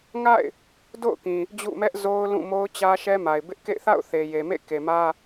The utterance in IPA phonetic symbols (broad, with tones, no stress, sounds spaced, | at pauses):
ŋ a̰˦˨ ɪ̯ | d o̰˦˨ ʊ̯ k ĩ˨ | d͡ʑ ṵ˦˨ m ɛ˦ ʔ z o˦ ʊ̯ l ũ˦˨ m o˦ ʊ̯ t͡ɕ ä˦ ʃ ɛ˦ m a˨ ɪ̯ b ɪ˦ ʔ k ḛ˦˨ ɪ̯ θ a̰˦˨ ʊ̯ θ e˨ j e˨ m ḛ˦˨ k e˨ m ä˦